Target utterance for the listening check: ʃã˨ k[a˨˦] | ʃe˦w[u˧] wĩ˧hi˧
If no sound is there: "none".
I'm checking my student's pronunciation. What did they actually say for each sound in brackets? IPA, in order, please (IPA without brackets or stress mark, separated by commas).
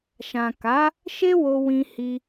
a˨˦, o˧